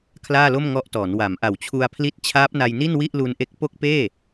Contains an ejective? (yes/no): no